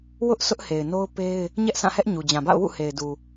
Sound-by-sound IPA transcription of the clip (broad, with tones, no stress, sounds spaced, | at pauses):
w ʊ˦ ʔ sʰ ʊ˦ ʔ h e˨ ɪ̯ n o˦ ʊ̯ p e˦ ɪ̯ | ɲ ɛ˦ ʔ sʰ ã˦˨ h ɛ˦ ʔ ɲ u˨ d͡ʑ ã˨ b a̰˦˨ ʊ̯ w ṵ˦˨ h e˨ ɪ̯ d u˨